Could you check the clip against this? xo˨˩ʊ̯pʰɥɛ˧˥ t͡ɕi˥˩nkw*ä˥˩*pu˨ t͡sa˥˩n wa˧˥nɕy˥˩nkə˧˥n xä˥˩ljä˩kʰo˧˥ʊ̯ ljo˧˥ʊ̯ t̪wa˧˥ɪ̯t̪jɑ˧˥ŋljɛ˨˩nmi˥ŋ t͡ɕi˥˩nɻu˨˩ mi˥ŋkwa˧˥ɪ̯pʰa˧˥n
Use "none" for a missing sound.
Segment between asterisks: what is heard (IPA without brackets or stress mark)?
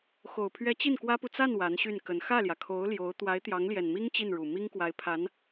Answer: ä˥